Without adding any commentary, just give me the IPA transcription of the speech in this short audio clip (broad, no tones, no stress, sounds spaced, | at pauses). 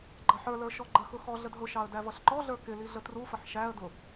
ɡ͡ǃ ʌ ħ ə˞ l ə˞ ʃ ɔ ɡ͡ǃ ə x ʊ x ɔ ɮ ə d ɦ ʊ ʃ ɑ ə̯ d æ v ʌ ɬ ǃ ɔ ɮ ə˞ k ɪ l i ɮ ə t r u f ə ħ ʃ æ ə̯ d ʊ